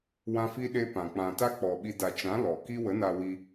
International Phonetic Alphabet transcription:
w ã˦ f i˦ ɗ e˦ p ã˨ k͡p ã˨ t a˦ k͡p ɔ˨ ɓ i˧ d a˨ t͡ʃ ã˨˦ l ɔ˨ k i˦ w ə˨˦ n a˧ w i˧

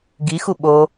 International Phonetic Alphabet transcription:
ɡ i x u ɓ o

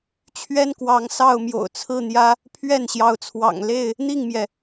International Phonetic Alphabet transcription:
t͡ɕʰ ɥ ɛ˦ n k w ɑ˨˦ ŋ s ɑ˥˨ ʊ̯ m j o̰˨˩ ʊ̯ t͡sʰ ɹ̩˥˨ n̪ j ä˦ | pʰ ɥ ɛ˥˨ n ɕ j ɑ˨˦ ʊ̯ t͡sʰ w ɑ̰˨˩ ŋ l e˥˨ ɪ̯ | n̪ i˥˨ ŋ m j ɛ˩

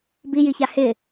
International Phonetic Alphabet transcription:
b i j i ç a h ɪ

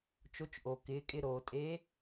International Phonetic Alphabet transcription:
t͡ʃ o˧˥ t͡ʃ ʔ o˩ k ɪː˩˧ kʼ ɪ˧ ɾ oː˩ tʼ e˧˥

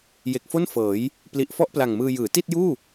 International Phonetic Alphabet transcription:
j e˨˩ k̚ f o˥˩ n f ɤː˩˦ j | p l i˨˩ ʔ f ɔ˥˩ ʔ p l a˨˩ ŋ m ɯː˧ j ɯː˩˦ t i˥˩ t̚ j uː˥˩

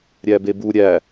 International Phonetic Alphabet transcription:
ɾʲ æ b e b u ɾʲ æ

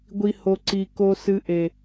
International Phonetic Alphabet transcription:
ɡʷ i˨ h o˨ ǀ i˨ k o˨ s ɨ˨ ʔ e˨

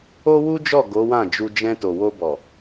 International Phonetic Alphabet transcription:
o˦ w u˦ d͡ʒ ɔ˦˨ ɡ o˨˦ w ã˦˨ d͡ʒ u˧ d͡ʒ ɛ̃˧ t o˨ w o˧ b ɔ˨

